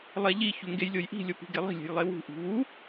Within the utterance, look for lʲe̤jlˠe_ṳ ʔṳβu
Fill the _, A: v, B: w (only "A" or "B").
B